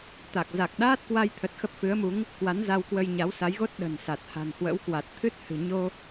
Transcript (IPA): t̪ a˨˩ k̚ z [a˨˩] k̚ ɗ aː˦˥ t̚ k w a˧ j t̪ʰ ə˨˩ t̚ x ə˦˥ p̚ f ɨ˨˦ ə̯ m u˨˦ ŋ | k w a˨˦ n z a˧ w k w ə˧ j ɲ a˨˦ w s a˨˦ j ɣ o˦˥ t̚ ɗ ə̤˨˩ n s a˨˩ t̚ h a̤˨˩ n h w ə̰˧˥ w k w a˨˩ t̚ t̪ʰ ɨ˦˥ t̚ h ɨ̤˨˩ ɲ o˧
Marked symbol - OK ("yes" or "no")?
yes